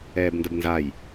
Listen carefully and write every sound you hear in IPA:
ɛː b n d ə b n z a j

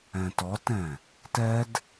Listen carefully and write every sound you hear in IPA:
ɛ̃ t ɔ t ɛ̃ | t ɛ d

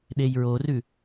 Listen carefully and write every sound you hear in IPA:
ɗ e j ɹ o r ʉ

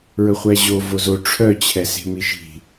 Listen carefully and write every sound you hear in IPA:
ɹ ɵ χʷ æ ʑ o v o z o ʈ͡ʂʰ œ t͡ɕʰ ɛ s e̤ m i ʃ i̤

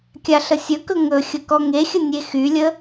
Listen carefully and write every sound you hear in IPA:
kʲ a ɬ ə sʲ ɵ k ɵ ŋ ɵ xʲ ə k ɔ ŋ e xʲ ə nʲ e x y lʲ ə

